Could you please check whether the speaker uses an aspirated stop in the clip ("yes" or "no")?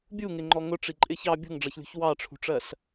yes